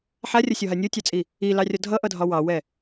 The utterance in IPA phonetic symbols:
ħ a rʲ ʌ sʲ ɒ ɦ a nʲ o tʲ ɑ t͡sʼ i | i l ɑ rʲ ɒ dʱ ʌ ʔ ʌ dʱ ɒ w ɑ w ɛ

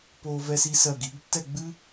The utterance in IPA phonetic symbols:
p o˧ v ɛ˧ s i˧ s ɜ˧˩ ɡ i˩˧ ɡ tː ɛ˥˧ ɡ͡b ɨ˥

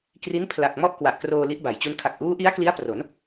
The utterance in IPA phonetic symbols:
k r i˦˥ n pʰ l a˨˩ k̚ m ɔ˥˩ ʔ k w a˨˩ ʔ k r oː˧ l i˦˥ ʔ b a˩˦ j t͡ɕ u˦˥ n kʰ a˨˩ k̚ ʔ uː˦˥ ʔ i˦˥ a̯ k l i˦˥ a̯ p r o˩˦ n

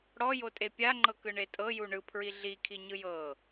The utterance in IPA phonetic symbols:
ɽ ɔ j o tʼ e pʲ a ŋ͡ǃ ɤ k ɯ ɳ e tʼ ɤ j u ɳ ɯ pʰ ɹ i ɮ i kʰ i ɲ ɯ j ɤ

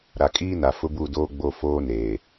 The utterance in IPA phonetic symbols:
ɾ a˨ kʼ iː˦ n a˨ f ʊ˦ b u˦˨ d oː˦ ɡ͡b o˦ f oː˦ n eː˨

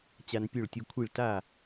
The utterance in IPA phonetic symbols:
t͡ɕ a˧ n pʲ ø˥˩ ɭ tʲ u˧ kʷʰ i˥˩ ɭ t a˥˩

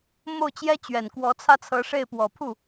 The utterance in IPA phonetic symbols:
m o˥˩ ʊ̯ t͡ɕ j ɛ˥ t͡ɕ ɥ ɛ˨˩ n k w ɔ˧˥ t͡sʰ ä˥ t͡sʰ ɤ˧˥ ʂ e˥˩ ɪ̯ p w ɔ˨˩ pʰ u˥˩

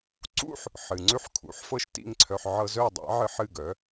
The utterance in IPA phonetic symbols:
ǀ ṵ˥ ħ | ħ ɨ˩ ŋ͡ǀ ʉ˥˩ ħ kʰ ṵ˩˥ ħ f ɤ˥˩ ʃ t ḭ˥˩ ŋ ǀʰ œ˧ ħ ʕ ɤ˧ z œ˥˩ dˤ a̰˩˥ ʕ ɨ˧ ħ ɨ˥˩ ɡ œ˩˥

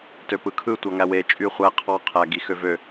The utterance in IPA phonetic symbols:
t ø p ɯ kʰ ɯ tʷ ɑ ŋ æ w e t͡ʃʼ y χʷ æ qʰ ɑ qʰ æ ɡ i x ø v ø

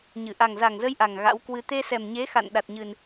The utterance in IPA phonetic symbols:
ɲ ɨ˧˩ ʔ a˨˩ ŋ z a˨˩ ŋ z ə˧ j ʔ a˨˩ ŋ ɣ a̰˧˥ w k w ɨ˧ t̪ e˧ s ɛ˨˩ m ɲ e˨˦ x a̰˧˨ n ɗ a˨˩ t̚ ɲ ɨ˨˩ n

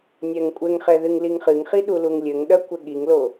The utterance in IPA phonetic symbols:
nʲ ɛ ŋ kʷʼ ɘ ŋ χ ɛ ð ɨ ŋ l i ŋ χ ɨ ŋ χ i ɗ u l u ŋ lʲ ɘ ŋ ɗ ɐ kʷ ɘ ɠ i ŋ l o

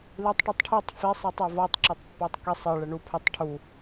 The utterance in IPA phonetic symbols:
l i tˤ ʈ ɔ tˤ ʈʰ i tˤ f i sˤ i tˤ o v ɔ tˤ ǁ ɔ tˤ pː ɔ tˤ k i sˤ ɘ ɭ ɘ ɳ u pʰ ɘ tˤ ʈʰ u

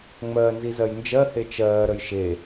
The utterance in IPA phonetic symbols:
ŋ͡m ɜː n z i z ɜ j n d͡ʒ ɜ h e t͡ʃ ɜː ɾ ə j ʃ e

